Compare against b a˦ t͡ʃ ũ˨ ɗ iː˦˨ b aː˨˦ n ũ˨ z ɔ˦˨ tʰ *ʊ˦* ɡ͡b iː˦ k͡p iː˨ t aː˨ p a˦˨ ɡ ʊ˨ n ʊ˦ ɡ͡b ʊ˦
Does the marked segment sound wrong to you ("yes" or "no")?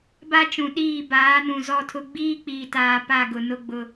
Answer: no